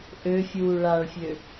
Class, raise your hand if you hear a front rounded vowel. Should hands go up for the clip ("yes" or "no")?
yes